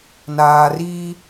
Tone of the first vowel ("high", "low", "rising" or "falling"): low